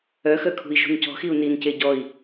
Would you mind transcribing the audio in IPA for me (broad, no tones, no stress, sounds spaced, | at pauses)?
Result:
œ x œ kʰ ṳ i̯ ʒ ṳ n c ɔ̤ x i u̯ n i n c e ɟ ɔ i̯